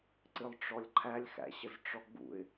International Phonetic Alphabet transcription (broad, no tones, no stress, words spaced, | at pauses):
ǀɨlˠʈ͡ʂɔlʲǃʰælʲxæ̰ ɕəzʈ͡ʂɔɡ͡bṵɪ̯